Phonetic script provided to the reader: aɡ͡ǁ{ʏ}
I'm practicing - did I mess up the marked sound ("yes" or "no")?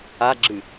yes